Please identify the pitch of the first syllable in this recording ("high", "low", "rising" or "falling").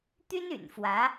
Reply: high